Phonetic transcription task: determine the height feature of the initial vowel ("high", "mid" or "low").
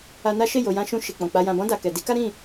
low